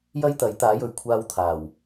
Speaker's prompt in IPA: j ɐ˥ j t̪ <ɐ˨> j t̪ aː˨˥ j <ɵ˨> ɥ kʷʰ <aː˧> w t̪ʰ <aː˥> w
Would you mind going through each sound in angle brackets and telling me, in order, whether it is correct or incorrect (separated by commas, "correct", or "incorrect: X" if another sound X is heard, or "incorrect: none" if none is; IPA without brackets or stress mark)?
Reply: incorrect: ɐ˨˥, correct, correct, incorrect: aː˨˩